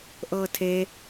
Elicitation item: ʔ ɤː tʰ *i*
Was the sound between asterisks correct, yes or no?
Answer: no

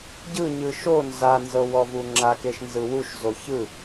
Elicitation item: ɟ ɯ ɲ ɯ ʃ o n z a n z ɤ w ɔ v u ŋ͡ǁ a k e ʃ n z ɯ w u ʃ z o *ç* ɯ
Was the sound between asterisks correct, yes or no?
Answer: yes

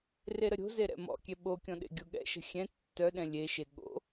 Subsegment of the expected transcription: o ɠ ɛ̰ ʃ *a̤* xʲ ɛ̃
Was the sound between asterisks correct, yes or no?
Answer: no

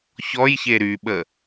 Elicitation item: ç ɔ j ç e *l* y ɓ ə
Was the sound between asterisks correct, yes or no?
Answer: no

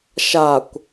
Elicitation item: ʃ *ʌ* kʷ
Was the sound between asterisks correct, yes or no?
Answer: no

